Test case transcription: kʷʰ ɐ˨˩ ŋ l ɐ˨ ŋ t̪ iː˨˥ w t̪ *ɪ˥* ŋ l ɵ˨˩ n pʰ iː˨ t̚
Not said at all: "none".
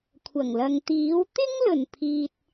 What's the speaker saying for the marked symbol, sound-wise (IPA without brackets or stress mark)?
ɪ˥